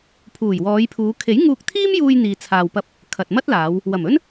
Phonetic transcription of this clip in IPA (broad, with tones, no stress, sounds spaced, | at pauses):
pʰ uː˨˩ j w ɔː˨˧ j pʰ uː˨˧ kʰ e˨˥ j ŋ uː˧ k̚ t̪ʰ iː˥ m j uː˧ j n̪ iː˨ t͡sʰ aː˨ w p ɐ˧ p̚ | kʰ ɐ˨ t̚ m ɐ˥ t̚ l aː˨˧ w | w ɐ˨˩ m ɵ˥ n